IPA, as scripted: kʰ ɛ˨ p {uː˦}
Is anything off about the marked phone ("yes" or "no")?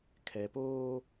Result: yes